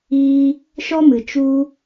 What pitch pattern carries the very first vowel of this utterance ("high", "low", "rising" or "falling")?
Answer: high